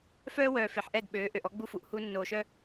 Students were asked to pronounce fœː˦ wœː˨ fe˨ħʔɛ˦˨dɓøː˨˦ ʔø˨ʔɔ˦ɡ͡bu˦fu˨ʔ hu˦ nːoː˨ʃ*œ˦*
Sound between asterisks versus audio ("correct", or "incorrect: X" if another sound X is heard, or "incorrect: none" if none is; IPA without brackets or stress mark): correct